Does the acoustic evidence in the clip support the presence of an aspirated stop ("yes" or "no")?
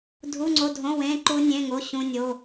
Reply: no